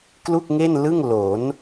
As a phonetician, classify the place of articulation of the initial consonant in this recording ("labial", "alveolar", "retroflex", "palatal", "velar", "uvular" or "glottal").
velar